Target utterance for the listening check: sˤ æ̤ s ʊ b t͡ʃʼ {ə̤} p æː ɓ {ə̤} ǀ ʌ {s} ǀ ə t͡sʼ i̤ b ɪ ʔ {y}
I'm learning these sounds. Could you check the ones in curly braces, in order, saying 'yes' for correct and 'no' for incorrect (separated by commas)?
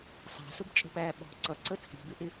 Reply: yes, no, no, no